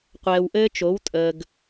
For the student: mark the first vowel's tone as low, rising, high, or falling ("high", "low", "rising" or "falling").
low